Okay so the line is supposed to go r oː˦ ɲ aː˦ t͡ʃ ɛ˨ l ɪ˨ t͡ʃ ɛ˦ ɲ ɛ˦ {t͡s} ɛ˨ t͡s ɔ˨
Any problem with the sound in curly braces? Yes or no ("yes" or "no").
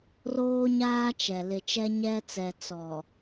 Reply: no